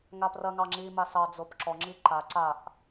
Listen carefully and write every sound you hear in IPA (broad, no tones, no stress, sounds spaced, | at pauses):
ŋ a p r ɐ ŋ ɑ ŋ͡ǁ i m a s ɑ d͡z o p ǁ ɔ ŋ͡ǁ i ǃ a ǀ a ʔ